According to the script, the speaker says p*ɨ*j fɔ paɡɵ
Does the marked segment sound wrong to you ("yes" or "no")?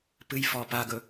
no